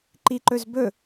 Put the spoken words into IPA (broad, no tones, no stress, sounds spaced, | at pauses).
ǃ i ǃ ɵ z b ɵ